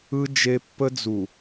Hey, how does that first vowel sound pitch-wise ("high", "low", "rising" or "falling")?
high